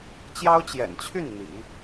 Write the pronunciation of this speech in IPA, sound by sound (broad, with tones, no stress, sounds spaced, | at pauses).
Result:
t͡ɕ j ɑ˥ ʊ̯ t͡ɕ j ɛ̰˨˩ n t͡ɕʰ y˥˩ n n̪ ḭ˨˩˦